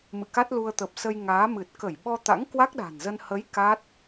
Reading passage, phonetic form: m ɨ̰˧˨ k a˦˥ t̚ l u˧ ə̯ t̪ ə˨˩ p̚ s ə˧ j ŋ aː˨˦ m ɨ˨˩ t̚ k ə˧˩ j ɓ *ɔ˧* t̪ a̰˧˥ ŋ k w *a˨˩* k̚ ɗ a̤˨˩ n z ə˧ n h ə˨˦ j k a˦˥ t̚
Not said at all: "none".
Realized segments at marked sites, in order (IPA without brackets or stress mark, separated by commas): ɔ˧, a˦˥